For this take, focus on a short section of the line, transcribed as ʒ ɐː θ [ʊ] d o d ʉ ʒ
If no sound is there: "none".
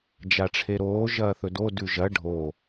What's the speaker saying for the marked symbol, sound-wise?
ɵ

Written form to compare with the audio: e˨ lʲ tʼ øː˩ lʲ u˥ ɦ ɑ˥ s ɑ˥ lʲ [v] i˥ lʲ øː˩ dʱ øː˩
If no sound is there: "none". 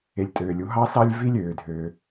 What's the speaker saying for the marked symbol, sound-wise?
v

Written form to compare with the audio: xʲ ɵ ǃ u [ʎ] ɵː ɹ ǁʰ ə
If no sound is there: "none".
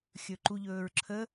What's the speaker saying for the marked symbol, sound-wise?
ʎ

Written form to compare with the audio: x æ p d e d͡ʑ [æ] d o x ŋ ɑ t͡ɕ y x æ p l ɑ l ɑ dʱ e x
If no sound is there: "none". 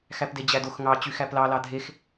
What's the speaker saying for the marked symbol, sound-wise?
æ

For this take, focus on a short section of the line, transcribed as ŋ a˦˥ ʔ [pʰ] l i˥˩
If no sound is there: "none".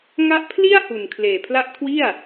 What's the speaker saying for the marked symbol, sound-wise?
pʰ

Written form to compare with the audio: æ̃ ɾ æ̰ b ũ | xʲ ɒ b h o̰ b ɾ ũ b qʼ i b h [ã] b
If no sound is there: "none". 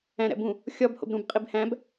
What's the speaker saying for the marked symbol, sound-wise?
æ̃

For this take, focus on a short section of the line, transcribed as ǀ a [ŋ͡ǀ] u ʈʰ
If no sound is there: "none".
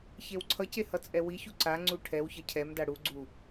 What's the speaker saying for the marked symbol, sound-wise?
ŋ͡ǀ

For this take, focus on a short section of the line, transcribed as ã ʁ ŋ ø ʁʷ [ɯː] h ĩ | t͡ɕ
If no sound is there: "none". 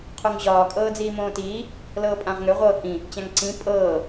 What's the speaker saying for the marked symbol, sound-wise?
ɤː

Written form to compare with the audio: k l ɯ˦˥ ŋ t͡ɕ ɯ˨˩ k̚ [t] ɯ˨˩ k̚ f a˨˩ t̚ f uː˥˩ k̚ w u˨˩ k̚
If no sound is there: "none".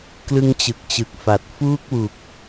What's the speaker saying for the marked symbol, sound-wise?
t͡ɕ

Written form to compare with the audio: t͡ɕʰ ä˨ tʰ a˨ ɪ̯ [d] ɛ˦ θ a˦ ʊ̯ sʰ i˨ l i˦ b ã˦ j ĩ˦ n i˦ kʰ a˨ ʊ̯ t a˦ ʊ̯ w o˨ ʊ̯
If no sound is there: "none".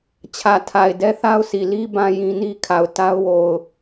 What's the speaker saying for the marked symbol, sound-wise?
d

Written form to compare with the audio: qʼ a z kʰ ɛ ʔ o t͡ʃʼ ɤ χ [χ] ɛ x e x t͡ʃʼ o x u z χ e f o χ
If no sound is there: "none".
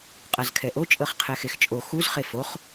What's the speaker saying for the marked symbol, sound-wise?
qʰ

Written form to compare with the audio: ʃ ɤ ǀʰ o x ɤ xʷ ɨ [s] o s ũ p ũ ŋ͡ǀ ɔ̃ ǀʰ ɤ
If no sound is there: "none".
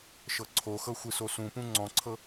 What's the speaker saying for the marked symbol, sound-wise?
s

